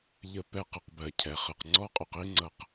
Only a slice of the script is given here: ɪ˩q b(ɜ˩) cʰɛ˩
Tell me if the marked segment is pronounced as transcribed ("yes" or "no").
yes